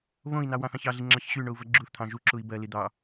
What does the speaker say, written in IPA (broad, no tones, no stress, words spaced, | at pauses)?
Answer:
βõi̯nɑ wɑ̃θɑ̃çɑɮi ŋ͡ǁɑçɕyɳou̯ vɜɡ͡ǁuθt̪ʰɑ̃ ʒuǁui̯ bɜli d̪ɑ